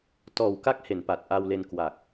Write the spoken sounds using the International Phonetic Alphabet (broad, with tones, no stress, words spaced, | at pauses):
tɔː˨˩wka˦˥k̚ he˩˦npa˨˩t̚ʔa˧wle˧n kwa˨˩k̚